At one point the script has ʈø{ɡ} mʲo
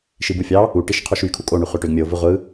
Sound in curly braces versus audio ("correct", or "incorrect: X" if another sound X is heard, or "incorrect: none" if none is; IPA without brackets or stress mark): correct